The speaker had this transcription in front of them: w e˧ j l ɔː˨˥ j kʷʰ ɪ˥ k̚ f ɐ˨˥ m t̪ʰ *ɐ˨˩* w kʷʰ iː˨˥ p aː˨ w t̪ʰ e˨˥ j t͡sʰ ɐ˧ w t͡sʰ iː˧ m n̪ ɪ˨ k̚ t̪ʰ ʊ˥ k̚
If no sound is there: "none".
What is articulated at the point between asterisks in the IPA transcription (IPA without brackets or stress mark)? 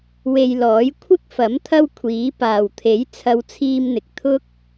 ɐ˥